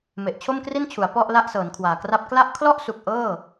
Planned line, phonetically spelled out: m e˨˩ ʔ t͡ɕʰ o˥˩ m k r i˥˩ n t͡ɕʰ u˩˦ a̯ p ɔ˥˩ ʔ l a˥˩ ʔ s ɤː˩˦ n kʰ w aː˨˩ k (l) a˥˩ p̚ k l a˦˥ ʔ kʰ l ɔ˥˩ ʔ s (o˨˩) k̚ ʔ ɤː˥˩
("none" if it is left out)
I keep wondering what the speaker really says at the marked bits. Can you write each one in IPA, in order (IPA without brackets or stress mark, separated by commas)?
r, u˨˩